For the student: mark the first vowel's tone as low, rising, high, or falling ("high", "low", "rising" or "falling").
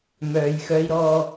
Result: low